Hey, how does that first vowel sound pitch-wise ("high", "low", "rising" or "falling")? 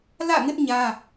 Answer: falling